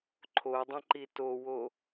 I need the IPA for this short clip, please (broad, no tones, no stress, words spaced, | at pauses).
ǃʰodˤə̃ǃi towo